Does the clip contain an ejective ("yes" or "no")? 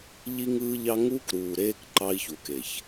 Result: no